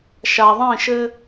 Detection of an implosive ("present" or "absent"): absent